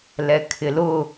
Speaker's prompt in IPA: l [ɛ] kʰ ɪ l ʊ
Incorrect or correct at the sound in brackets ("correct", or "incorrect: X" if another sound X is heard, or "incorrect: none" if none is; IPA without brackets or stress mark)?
correct